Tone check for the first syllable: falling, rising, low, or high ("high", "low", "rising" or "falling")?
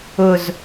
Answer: low